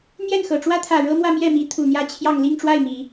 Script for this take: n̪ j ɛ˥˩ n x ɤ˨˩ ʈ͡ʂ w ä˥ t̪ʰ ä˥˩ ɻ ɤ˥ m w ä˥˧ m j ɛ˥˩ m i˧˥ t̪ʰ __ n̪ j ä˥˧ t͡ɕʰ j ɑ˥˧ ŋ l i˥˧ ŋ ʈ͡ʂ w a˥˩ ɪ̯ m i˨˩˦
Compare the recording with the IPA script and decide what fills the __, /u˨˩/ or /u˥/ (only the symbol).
u˨˩